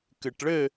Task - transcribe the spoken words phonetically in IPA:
kɨʈɭɘ

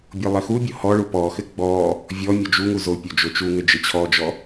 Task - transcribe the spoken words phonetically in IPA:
bʲolˠɘxubʲo hɔɭu pɔxɘ ɡ͡bɔ | vʲɔmʲo d͡ʒuŋu zopʲo d͡ʒot͡ʃuŋɘ d͡ʒɘt͡ɕʰɔd͡ʒɔ

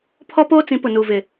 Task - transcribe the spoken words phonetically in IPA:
pʰɔ˦poː˦t͡sĩ˨˦ pʊ˨nuː˨vɪ˨

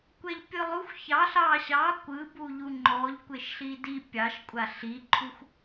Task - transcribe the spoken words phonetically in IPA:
kʷɛʎpʲɯlˠuxʷ çɑɬ ɑ ɕɑ kʷɯbuʎu ŋ͡ǃɔʎ kʷeʃɬidi pʲɑʃkʷʼa ɬiǃʰux

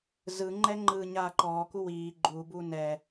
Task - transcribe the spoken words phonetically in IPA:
zɯŋ͡ǃɛ ŋ͡ǃɯːɲaːǃɔːku wiː ɡ͡ǃuːbuː nɛ

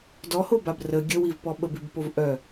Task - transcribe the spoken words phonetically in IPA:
dɔhobab rə ɡʲəwivpɔ ɓəbibpov ʔœ

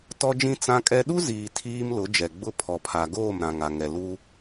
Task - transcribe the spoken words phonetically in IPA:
tɔ˦d͡ʒĩ˦ t͡sã˦kʼɛ˦ ɗu˦ziː˨ tʰiː˦mlʊ˨˦d͡ʒɛ˨ ɡ͡bʊ˦ pʰɔ˨pʰa˨ɡoː˦˨m ɾã˨ŋa˨ŋɛ˨ lu˦

